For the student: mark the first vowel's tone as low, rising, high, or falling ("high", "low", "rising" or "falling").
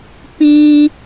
high